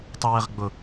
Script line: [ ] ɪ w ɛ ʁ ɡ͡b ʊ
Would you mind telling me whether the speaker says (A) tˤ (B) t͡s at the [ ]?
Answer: A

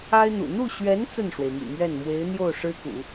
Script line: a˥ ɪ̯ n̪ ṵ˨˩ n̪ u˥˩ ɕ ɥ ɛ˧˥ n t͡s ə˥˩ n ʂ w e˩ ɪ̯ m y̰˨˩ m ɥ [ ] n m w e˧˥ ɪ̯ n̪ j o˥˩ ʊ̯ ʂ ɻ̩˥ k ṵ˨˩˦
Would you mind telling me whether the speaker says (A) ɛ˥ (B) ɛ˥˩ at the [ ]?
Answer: B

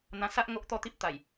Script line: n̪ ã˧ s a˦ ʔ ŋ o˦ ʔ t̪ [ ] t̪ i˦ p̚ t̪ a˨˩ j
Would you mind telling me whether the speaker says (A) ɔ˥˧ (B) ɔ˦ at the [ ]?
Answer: A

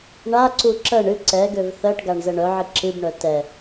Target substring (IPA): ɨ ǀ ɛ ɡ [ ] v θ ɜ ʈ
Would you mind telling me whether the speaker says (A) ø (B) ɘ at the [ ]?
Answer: A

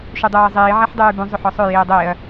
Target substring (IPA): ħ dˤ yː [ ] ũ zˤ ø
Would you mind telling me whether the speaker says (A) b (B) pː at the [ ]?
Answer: A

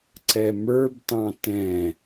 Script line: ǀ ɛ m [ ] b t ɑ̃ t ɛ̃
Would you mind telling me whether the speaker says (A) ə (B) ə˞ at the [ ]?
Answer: B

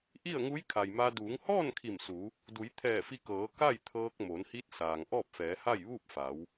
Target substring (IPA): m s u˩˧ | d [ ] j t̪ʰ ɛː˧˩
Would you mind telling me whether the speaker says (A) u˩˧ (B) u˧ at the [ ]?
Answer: A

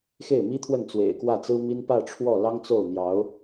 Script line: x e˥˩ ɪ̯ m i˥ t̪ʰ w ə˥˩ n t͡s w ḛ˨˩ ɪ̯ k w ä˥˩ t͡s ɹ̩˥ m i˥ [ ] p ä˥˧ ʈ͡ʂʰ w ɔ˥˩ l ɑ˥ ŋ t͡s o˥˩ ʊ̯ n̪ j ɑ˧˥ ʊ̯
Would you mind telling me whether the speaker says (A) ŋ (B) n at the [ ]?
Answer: B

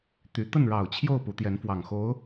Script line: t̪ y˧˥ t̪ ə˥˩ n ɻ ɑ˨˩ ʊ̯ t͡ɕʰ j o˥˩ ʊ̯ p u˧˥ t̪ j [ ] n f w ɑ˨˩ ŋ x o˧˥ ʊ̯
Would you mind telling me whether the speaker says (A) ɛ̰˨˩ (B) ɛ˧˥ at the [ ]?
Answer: B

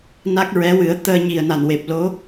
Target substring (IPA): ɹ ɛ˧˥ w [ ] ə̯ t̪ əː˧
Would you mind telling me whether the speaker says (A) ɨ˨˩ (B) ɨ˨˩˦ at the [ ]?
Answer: B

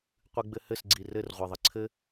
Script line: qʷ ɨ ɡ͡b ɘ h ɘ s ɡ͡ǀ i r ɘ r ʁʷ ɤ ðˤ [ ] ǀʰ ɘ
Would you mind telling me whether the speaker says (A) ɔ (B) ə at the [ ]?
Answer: B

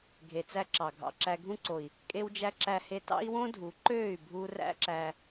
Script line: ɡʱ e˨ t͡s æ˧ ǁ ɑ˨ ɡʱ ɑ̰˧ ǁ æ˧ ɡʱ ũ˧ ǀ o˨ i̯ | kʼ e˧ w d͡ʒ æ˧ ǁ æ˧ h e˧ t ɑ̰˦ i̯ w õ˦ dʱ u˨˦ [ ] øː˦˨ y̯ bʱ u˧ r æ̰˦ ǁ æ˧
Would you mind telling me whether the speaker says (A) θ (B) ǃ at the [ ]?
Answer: B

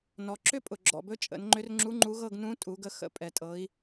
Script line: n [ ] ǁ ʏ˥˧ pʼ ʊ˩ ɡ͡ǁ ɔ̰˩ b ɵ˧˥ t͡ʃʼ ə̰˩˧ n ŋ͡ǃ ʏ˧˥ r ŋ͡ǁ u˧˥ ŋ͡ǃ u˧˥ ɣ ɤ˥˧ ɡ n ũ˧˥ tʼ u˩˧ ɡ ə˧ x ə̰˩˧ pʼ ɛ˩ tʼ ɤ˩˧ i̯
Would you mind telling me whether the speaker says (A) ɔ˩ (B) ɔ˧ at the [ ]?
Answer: A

